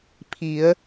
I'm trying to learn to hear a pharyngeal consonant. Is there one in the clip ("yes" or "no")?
no